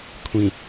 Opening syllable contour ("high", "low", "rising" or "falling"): low